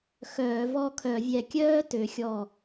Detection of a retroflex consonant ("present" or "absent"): absent